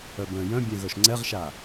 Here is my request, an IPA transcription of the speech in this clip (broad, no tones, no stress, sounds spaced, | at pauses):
œ b œ̃ j œ̃ bʲ ɛ̃ ɣ œ ʃ ŋ͡ǀ ɛ ʁ ʃ a